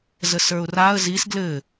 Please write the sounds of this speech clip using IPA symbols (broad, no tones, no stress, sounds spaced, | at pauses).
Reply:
z ə s ə˞ ʊ̯ r a ə̯ z i s ɡ l ɘ